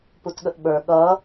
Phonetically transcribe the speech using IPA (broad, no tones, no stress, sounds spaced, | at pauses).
p u t ɠ ə ʔ ɓ ə˞ ɠ ʌ